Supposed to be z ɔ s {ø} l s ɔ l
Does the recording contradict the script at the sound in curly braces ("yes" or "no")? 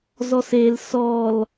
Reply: yes